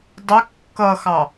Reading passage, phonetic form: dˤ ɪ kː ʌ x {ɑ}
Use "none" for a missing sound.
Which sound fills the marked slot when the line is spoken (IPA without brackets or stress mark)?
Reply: ɑ